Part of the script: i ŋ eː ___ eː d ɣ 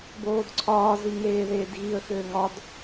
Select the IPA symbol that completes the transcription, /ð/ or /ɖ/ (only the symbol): ð